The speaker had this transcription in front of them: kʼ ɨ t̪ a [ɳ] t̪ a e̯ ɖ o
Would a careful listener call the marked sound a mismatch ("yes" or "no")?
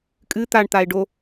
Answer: no